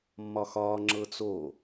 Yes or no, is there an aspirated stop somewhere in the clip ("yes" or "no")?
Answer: no